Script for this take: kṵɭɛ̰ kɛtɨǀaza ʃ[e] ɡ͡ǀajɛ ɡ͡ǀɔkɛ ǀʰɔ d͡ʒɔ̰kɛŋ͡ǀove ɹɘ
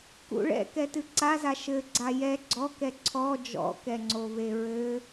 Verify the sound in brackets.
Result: incorrect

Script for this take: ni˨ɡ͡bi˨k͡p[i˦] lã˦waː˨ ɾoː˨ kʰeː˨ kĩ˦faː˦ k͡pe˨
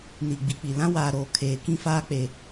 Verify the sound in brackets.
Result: incorrect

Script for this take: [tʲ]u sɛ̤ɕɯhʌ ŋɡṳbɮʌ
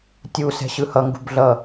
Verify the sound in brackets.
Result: correct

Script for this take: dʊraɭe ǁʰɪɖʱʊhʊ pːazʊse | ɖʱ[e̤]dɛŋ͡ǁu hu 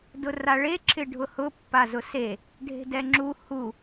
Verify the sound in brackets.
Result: correct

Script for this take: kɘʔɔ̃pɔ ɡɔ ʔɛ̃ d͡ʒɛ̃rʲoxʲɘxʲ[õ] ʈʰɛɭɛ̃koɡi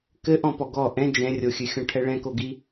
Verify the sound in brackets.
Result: incorrect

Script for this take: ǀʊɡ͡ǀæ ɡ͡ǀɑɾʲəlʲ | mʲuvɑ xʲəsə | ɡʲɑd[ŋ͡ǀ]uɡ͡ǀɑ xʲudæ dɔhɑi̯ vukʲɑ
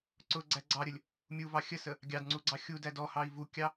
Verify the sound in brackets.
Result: correct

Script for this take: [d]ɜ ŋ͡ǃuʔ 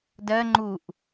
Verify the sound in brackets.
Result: correct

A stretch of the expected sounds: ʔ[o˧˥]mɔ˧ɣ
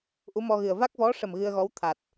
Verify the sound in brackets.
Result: incorrect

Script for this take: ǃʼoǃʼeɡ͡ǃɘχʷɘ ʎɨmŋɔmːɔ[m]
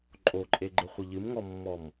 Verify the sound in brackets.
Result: correct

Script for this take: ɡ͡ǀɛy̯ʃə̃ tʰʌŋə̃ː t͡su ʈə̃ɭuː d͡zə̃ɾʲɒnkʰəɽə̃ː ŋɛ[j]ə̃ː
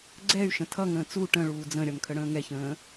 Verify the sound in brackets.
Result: incorrect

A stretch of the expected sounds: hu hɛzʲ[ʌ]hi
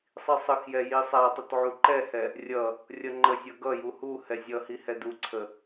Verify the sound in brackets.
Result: correct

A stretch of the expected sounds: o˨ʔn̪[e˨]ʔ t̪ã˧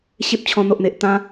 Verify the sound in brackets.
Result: correct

